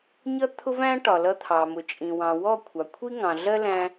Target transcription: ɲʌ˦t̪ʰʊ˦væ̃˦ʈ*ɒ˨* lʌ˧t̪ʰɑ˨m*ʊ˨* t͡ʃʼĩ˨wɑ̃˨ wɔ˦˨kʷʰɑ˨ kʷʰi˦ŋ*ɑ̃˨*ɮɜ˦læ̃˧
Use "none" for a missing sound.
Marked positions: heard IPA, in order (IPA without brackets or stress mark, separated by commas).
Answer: ɒ˨, ʊ˨, ɑ̃˨